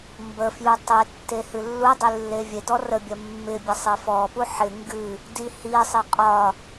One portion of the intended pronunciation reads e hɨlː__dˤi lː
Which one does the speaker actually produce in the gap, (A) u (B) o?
A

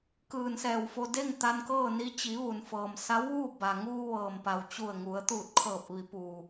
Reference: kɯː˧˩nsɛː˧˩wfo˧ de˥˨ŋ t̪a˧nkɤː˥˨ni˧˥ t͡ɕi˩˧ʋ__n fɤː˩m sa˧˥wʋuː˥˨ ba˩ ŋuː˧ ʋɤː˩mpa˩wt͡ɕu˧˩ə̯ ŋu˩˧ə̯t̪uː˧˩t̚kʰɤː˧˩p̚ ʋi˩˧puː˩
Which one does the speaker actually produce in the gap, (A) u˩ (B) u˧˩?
A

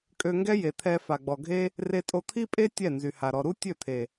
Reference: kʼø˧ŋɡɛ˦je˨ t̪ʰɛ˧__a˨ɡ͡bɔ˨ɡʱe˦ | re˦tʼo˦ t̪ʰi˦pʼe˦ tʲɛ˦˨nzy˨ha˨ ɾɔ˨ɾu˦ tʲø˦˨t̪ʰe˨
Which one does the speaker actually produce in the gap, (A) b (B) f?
B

